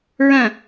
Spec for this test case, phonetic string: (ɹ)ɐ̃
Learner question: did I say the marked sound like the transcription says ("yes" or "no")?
yes